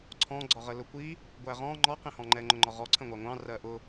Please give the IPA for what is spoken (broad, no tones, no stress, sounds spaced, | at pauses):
ǀʰ ɔ̃ ɡ͡ǀ ɒ ʁ ə l ʊ kʷ i | ɡʷ æ ʁ ɔ̃ ŋ͡ǃ ɔ q ĩ h ɔ̃ ŋ͡ǃ ɛ ŋ͡ǃ ʊ ŋ͡ǃ ɒ ʁ ɔ ǀʰ ə̃ ŋʷ ɑ ŋʷ ɑ̃ r ɜ ʔ ʊ